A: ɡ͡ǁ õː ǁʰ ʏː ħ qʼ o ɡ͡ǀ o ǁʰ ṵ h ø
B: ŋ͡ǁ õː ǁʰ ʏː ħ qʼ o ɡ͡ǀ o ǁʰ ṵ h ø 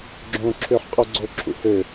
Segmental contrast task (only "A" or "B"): A